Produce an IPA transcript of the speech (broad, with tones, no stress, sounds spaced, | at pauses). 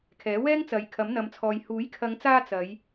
kʰ ɛː˨˥ w ɛː˥ ŋ t͡s ɐ˨˧ j kʰ ɐ˨˥ m n̪ ɐ˨˧ m t͡sʰ ɔː˨ j h uː˨˥ j kʰ ɐ˨˧ ŋ t͡s aː˧ t͡s ɐ˨˧ j